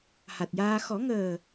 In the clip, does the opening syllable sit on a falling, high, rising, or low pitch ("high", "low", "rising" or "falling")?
low